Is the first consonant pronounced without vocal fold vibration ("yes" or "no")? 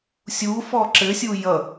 yes